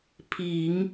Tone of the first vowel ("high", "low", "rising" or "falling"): low